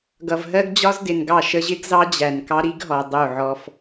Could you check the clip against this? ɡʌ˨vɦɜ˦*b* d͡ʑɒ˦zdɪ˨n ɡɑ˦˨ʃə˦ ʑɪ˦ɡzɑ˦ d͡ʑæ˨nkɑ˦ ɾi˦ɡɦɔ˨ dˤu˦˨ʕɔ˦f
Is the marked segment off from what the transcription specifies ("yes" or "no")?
yes